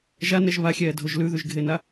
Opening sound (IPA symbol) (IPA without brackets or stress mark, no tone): ʒ